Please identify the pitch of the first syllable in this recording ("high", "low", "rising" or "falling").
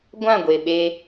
falling